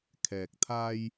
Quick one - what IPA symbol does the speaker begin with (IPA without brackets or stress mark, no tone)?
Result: kʰ